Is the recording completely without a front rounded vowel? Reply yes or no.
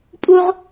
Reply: yes